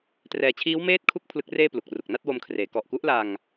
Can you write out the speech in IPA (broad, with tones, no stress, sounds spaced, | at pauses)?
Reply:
t r ɛː˨˩ t͡ɕʰ iː˦˥ w m eː˥˩ t̚ kʰ u˥˩ k̚ pʰ l ɯ˦˥ k̚ r eː˥˩ p l u˨˩ k̚ r u˨˩ k̚ n a˥˩ t̚ w o˧ m kʰ r eː˩˦ k ɔ˨˩ ʔ k u˦˥ ʔ l a˧ ŋ